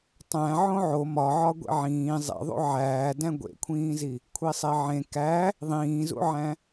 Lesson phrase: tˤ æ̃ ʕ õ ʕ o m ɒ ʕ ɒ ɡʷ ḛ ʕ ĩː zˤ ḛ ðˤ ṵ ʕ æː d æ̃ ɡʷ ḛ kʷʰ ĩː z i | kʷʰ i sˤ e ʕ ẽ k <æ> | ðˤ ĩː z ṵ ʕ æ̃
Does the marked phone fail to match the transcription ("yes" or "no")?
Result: no